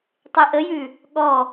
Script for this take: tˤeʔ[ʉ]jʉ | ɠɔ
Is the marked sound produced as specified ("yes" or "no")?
no